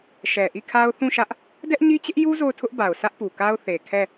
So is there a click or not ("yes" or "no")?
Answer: no